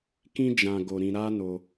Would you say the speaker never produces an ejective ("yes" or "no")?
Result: yes